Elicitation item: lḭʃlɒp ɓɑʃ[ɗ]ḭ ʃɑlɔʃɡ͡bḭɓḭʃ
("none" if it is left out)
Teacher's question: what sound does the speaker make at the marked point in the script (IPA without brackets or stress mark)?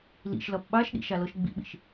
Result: ɗ